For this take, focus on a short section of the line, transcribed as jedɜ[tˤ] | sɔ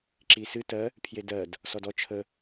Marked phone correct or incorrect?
incorrect: d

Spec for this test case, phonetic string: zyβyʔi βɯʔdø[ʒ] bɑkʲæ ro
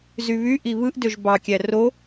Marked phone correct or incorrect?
correct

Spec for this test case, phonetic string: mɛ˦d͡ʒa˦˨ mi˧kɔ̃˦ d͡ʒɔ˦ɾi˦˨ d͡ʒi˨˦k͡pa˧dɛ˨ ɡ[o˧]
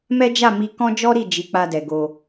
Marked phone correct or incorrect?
correct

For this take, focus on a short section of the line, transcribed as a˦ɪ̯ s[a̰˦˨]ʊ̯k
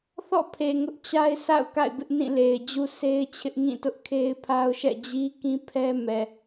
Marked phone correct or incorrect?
correct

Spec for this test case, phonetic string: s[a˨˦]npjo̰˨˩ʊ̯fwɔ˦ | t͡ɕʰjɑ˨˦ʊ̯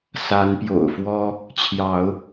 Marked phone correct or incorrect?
correct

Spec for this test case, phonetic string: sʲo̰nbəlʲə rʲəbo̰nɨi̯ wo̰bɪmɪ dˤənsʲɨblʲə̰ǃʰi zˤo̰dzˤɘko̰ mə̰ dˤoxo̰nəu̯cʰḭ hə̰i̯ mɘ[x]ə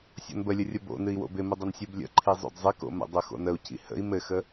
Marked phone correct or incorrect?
correct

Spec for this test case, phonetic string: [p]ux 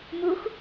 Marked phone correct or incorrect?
incorrect: m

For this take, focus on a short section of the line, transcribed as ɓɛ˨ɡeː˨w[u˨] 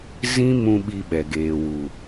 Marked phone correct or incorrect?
correct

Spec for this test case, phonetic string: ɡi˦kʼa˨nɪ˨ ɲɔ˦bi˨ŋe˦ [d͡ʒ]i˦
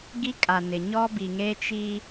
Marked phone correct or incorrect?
incorrect: t͡ʃ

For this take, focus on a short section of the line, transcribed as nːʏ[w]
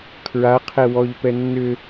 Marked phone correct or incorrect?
incorrect: none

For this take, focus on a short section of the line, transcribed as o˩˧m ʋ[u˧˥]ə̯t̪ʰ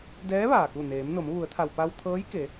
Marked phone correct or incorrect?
incorrect: u˩˧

